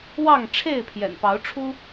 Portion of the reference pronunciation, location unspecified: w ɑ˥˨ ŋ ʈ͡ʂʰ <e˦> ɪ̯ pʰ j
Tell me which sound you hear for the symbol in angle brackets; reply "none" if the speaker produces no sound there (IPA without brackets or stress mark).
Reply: e˥˨